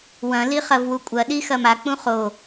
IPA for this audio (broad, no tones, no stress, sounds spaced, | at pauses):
w ɐ̃ l i χ ɐ v w u kʷʼ ɐ ɗ i x ɐ m a k͡p ũ χ o